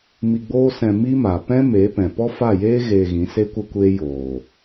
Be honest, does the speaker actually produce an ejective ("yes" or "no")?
no